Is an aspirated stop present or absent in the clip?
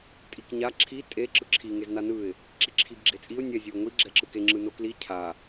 present